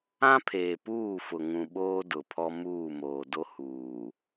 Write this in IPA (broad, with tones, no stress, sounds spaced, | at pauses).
ã˦ pʰ eː˨ p uː˦˨ f ʊ˨ ŋ ũ˨ ɓ oː˦ d ʊ˨ pʰ ɔ˦ m uː˦˨ m oː˨ d o˦ h uː˨